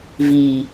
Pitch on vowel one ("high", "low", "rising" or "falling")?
low